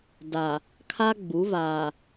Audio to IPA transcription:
da˨ | kʰa˦ɡ͡bu˨˦ vaː˨

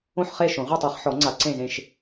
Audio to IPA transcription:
õ˥˨ħ χe˥˨ʃõ˨˩˦ ʁʷa˥˨tˤɤ˨˩˦χħɔ˨˩˦ŋ͡ǀa˨˩˦ ǀẽ˥˨zẽ˥˨ʃ

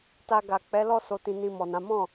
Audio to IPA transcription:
ta˧ɡa˨ k͡pɛ˨˦lɔ˦ so˧tĩ˧nĩ˧ mɔ˨nã˨˦ mɔ̃˦˨

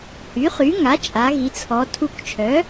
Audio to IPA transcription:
hy˩˥χy˩˥ ŋa˩˥t͡ʃʼa˩˧ɣi˩˧t͡sʰɔ˩˧ tʰu˧˩kt͡ʃʰœ˩˥

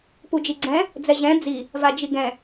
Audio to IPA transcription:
pud͡ʒiɡ͡ǀɛ̃ | d͡zɛʑɛ̃ d͡zi | vad͡ʒiɡɛ̃

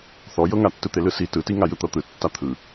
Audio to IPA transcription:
θɔjɤŋatːɯ t̪elɯsi tɯti ŋajɯt̪ɤt̪ɯ tːat̪ʰɯ

